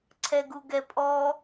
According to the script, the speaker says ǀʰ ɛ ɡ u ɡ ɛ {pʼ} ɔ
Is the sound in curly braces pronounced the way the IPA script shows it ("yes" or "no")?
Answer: yes